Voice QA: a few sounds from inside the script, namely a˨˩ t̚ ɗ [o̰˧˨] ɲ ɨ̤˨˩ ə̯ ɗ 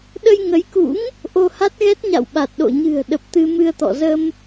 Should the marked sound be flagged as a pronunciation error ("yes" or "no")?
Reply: no